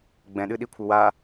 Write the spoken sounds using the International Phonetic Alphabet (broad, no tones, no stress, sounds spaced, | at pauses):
ɡ͡b ɛ̃ ɗ ɨ ɗ i kʷʰ ɘ w a